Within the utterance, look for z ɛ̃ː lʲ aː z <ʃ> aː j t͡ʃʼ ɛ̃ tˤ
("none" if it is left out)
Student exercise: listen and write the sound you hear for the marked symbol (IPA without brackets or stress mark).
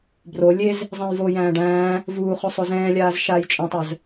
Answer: ʃ